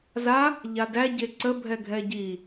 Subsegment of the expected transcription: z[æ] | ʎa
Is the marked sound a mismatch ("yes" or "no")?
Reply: yes